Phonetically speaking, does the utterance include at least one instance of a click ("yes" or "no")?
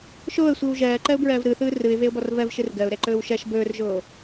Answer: yes